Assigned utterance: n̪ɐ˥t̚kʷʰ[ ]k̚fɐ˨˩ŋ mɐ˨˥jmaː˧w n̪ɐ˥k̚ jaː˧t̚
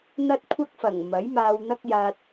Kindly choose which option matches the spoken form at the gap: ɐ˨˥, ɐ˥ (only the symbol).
ɐ˥